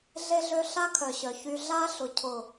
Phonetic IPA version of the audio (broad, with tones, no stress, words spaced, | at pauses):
ɮe˦ɮø˦ ɬa˦kʰœ˨ɕœ˨çy˧ ɮa˦ ɬʊ˧cʰʊ˦˨